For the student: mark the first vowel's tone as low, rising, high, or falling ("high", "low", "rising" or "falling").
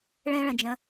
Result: high